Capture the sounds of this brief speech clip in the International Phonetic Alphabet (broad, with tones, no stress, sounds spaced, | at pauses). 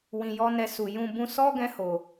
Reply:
w ĩ˨ j ɔ˧ n ɛ˧ s u˨ j ũ˧ b ũ˧ s ɔ˦ ɡ ɛ̃˧ h o˨